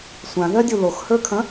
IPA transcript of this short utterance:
sʷãðɜdʲu loxhə˞kʰɐ̃

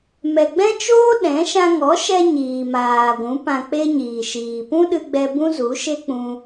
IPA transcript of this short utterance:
mɛ˨ɡ͡bɛ̃˦t͡ʃoː˦ ɗɛ̃˨˦ ʃã˧ŋɔ˨˦ʃɛ˧ ɲiː˨maː˨ɡʷũ˨˦ pã˧k͡pe˦ɲiː˨ʃiː˨ pũ˦ɗɨ˧ɡ͡bɛ˧ bũ˦zu˨˦ʃe˦k͡pũ˧

